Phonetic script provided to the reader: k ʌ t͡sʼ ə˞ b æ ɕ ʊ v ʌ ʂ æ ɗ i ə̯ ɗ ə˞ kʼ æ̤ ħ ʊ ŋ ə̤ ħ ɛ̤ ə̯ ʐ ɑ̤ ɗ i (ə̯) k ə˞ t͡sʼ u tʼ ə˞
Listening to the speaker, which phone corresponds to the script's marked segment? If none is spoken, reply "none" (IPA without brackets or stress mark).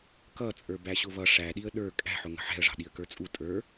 ə̯